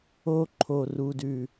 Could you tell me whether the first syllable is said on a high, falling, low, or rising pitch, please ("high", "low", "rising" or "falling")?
high